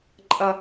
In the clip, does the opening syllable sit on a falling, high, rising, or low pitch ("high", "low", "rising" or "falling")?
high